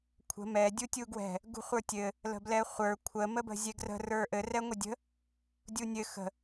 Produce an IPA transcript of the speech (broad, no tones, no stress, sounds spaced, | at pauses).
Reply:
kʷʰ ə̤ m ɛ dʲ u tʲ u ɡ w ɛ̤ | ɡ ṳ χʷ ə˞ tʲ ɘ | l ə̤ b l ɛ χʷ ə˞ kʷʰ ə m ə b ə̤ zʲ ɛ ɡ r ə̤ r ə˞ ʔ ɘ r ɛ ŋʷ ɘ dʲ ə̤ | dʲ u nʲ ɘ x ə̤